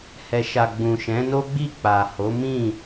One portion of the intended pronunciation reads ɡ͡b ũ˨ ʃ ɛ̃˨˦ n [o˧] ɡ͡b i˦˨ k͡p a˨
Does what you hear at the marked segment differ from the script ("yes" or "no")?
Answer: yes